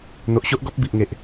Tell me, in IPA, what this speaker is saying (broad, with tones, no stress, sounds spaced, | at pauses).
n̪ o˨ ʔ ɕ o˦ ʔ ɡ ɔ˦ p̚ b i˨ ʔ ŋ e˨ ʔ